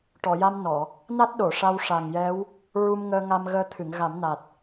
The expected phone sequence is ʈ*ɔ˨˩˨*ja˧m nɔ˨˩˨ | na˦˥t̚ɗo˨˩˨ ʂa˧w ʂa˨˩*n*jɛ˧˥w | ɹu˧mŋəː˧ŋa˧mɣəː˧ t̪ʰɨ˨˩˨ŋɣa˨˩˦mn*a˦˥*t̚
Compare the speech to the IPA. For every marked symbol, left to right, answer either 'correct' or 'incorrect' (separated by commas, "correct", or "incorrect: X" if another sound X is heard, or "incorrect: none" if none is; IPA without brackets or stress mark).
correct, incorrect: ŋ, incorrect: a˨˩